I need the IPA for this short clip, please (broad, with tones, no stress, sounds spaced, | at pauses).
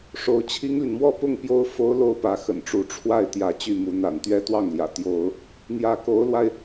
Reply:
ʂ o˧˥ ʊ̯ t͡ɕʰ i˥ ŋ l y˨ n m w ɔ˥˧ p ʊ˥˩ ŋ p j o˥ ʊ̯ f o˥ ʊ̯ l o˥˩ ʊ̯ p ä˧˥ x ə̰˨˩ n ʈ͡ʂ u˧˥ ʈ͡ʂʰ w a˥˩ ɪ̯ t̪ j ä˧˥ t͡ɕ y˥˩ m u˧˥ n̪ a̰˨˩ n t̪ ɥ ɛ˥ t̪ w ɑ˥˩ ŋ l j ä̰˨˩ t̪ j o˥ ʊ̯ | n̪ j ä˧˥ k o˧˥ ʊ̯ l w a˧ ɪ̯